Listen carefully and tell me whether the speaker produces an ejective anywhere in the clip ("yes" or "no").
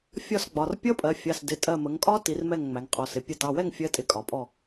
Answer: yes